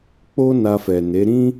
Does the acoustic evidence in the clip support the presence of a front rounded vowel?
no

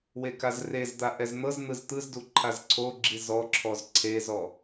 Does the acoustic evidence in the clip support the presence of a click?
yes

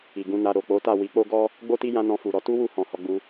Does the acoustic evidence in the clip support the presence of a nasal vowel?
yes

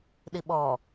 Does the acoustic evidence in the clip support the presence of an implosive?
yes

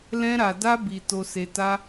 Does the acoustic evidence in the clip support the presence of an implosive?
no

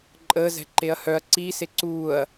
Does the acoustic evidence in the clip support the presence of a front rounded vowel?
yes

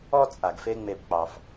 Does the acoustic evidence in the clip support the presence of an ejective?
yes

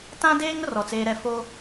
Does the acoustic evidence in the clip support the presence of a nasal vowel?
yes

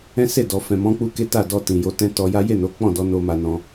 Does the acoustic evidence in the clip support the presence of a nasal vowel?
yes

